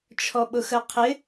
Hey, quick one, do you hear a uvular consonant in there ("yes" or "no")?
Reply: yes